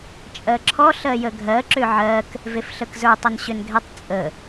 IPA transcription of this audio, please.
t͡ʃʼɜǁʰɔ ɬɜjəɡʱɜ ǁʏʕɜk | vefɬəkzə˞tˤ ʏnɕʏnɡʱɛtˤ t͡sʼə

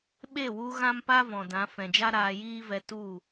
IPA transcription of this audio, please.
ɓe˦˨wu˧ ɣã˦mpa˦ vɔ̃˨dã˨˦ fɛ̃˨d͡ʒa˦ ɾaː˧jiː˦vɛ˧ tu˦˨

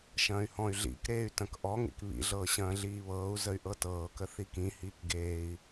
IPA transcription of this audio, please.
ʃɐ̃ːy̯hɔ̃y̯ɮḭkɾeːy̯ tɐ̃kʔɔŋḛk βḭɮɤː ɕɐ̃ːɮiːβɤːu̯zəy̯ ʔɤtɤːkə θikĩhiːk ɡeːi̯

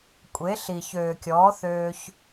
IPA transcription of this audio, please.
kʷʼe˨˦ɬi˨ çøː˨kʲɔː˨˦ θøː˧ç

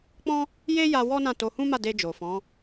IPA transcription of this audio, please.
k͡pɔ̃˦ | je˦ja˧ wɔ˦nã˦˨to˧ hũ˦ma˦˨de˧ d͡ʒo˨fɔ̃˨˦

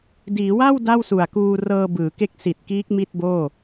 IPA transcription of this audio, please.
diː˩˦wa˥˩w da˥˩wsu˨˩a̯kuː˧ rɤː˧bɯː˩˦ke˦˥k̚ si˨˩t̚kiː˦˥k̚ mi˥˩t̚boː˥˩

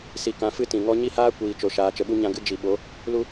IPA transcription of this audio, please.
si˧kã˧fɨ˦ tĩ˨ŋɔ˦ ɲi˦haː˦ kʷiː˨t͡ʃo˨ ʃaː˨t͡ʃə˨ɓu˧ ɲã˧ɡɨ˧ d͡ʒi˨ɓo˨˦ | lu˦

